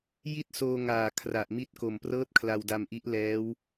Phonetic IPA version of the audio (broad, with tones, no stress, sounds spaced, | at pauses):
j i˥˩ t̚ s oː˧ ŋ aː˨˩ kʰ r a˨˩ ʔ m i˦˥ t̚ k o˨˩ m p r ɤː˥˩ t̚ kʰ l a˧ w d a˧ m ʔ i˦˥ ʔ l ɛː˦˥ w